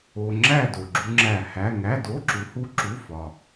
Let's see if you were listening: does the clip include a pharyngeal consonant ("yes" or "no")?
no